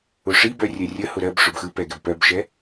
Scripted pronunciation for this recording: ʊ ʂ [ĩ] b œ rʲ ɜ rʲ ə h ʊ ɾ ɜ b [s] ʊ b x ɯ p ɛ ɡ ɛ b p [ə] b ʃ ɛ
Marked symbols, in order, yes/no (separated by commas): no, no, no